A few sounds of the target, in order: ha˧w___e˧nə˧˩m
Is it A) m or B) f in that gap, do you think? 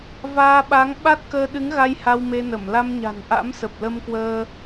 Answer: A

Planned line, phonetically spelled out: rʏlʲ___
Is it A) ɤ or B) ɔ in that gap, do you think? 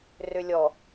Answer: B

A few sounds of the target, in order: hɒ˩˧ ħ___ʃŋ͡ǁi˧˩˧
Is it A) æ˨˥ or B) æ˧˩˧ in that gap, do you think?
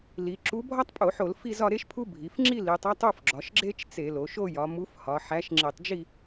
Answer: A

